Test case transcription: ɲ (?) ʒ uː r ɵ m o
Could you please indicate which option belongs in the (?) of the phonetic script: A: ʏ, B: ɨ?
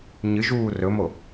B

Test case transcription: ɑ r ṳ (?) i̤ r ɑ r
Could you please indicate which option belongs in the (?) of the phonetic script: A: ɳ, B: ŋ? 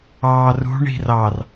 A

